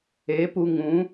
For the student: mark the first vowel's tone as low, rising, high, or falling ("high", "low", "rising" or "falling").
rising